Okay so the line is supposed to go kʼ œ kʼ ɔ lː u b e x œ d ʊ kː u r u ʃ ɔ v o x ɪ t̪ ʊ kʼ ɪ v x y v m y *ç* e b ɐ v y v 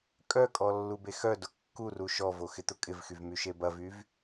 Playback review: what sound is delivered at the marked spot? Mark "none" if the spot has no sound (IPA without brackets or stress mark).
ʃ